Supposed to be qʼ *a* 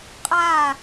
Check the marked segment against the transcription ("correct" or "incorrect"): correct